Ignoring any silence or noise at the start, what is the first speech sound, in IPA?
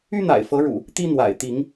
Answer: y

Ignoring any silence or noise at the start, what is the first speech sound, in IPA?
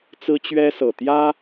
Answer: t͡s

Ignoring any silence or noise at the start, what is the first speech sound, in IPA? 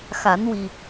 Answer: x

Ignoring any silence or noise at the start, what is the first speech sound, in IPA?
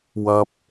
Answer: w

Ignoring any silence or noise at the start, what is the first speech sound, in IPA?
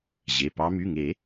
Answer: ʑ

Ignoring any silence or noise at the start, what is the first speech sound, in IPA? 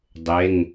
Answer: dˤ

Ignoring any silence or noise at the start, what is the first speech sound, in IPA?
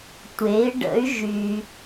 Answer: tʷ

